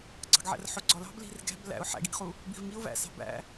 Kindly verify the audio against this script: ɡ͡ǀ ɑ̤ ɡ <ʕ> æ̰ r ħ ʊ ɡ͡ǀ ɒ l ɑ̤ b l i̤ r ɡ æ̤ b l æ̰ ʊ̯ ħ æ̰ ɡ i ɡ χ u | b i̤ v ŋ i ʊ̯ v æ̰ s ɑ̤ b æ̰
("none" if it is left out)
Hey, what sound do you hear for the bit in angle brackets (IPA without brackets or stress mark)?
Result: ʕ